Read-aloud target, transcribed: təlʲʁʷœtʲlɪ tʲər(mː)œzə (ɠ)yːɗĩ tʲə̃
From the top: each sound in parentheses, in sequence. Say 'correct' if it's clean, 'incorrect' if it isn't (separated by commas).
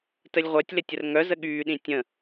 incorrect, correct